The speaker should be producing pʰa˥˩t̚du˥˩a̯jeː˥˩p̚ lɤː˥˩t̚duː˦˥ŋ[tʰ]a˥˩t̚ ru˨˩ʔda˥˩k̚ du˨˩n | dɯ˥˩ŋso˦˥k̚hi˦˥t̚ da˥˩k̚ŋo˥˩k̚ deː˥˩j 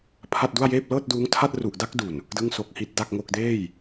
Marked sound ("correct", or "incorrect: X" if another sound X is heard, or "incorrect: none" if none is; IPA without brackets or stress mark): correct